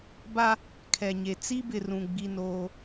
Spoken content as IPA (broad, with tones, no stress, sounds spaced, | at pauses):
b a˦ | kʰ ɛ˨ ɲ e˨ t͡s i˦ b ɪ˨ r ũ˨ ɡ͡b i˦ n oː˦